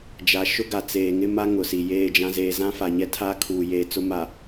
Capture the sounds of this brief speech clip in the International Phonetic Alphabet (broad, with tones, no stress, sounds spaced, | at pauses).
d͡ʒ a˨ ʃ ʊ˦ ɡ a˨ t͡s eː˨ ŋ ɪ˦ m a˦ ŋ ʊ˨ s i˨ j eː˦˨ d͡ʒ ã˦ z eː˨ z ã˦ f a˨ ɲ ɛ˦ tʰ aː˦ kʰ uː˨ j eː˨ t͡s ʊ˦ m a˨